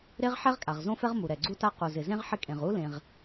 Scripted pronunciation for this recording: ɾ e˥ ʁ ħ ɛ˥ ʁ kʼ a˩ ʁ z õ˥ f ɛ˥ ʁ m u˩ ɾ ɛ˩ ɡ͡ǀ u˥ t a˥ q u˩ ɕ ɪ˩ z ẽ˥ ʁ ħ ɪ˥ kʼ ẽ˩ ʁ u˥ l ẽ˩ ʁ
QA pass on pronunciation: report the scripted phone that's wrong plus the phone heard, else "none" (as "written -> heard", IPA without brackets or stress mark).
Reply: ɕ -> z